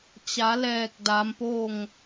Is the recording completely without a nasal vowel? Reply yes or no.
yes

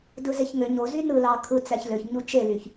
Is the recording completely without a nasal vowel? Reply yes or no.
yes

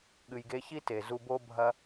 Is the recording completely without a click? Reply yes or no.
yes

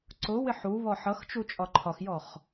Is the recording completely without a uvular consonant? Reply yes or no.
no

